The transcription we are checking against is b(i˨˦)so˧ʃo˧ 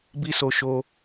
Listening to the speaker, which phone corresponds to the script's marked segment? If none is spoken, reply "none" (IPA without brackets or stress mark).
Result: i˦